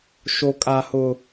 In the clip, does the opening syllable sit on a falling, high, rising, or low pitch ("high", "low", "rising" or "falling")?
high